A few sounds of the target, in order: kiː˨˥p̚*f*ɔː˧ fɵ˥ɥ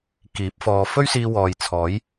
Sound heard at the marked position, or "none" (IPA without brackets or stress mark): f